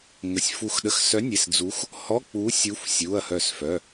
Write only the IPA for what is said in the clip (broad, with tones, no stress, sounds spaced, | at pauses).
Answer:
ŋ ə˩˧˩ sʲ f u˧˩ x ɗ ə˧˩ x s œ˨˥ nʲ e˩˧˩ s d͡z u˨˥ x | h ɔ˧˥˧ k͡p u˨˥ sʲ u˨˥ f sʲ u˩˧˩ ɐ̯ h œ˧˩ s f œ˩˧˩